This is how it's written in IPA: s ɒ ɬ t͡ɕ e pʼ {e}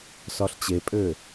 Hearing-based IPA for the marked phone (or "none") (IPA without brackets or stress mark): ø